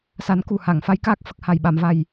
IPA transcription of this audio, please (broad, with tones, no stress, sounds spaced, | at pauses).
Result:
s a˨˩˦ n k u˨˩ h a˨˩˨ ŋ f a˧˥ j k aː˦˥ k̚ f ə˨˩ k̚ h a˨˩ j ɓ a˨˩˨ m v a˨˩ j